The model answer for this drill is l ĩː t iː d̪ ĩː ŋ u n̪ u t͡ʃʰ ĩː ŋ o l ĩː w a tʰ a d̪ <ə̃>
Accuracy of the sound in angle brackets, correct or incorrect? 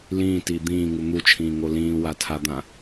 incorrect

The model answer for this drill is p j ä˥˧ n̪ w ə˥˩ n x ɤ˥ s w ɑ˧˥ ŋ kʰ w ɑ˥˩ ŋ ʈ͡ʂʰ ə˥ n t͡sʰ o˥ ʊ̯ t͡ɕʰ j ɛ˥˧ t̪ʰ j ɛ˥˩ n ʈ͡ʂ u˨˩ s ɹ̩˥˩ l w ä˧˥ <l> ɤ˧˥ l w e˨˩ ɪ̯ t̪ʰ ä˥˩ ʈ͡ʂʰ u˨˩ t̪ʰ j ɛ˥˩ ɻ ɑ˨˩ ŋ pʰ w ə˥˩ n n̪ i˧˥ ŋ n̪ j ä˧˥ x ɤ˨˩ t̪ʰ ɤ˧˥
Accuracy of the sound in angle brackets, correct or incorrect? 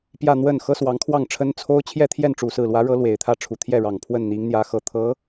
incorrect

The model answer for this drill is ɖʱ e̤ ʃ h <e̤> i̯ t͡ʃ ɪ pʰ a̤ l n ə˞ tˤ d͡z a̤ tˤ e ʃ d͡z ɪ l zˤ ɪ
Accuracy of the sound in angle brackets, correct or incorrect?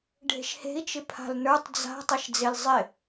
correct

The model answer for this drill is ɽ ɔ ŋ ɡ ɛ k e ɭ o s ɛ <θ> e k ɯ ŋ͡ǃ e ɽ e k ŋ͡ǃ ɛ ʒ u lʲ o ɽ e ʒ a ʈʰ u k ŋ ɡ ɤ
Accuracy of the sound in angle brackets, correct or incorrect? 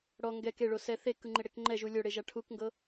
correct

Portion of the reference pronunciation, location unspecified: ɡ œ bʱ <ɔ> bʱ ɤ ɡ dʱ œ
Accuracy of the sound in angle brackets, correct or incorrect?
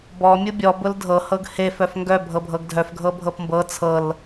incorrect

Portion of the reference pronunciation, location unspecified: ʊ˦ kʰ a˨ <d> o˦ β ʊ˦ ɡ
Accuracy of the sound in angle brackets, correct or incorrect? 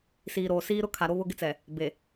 incorrect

